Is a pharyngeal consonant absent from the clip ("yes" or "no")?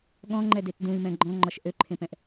yes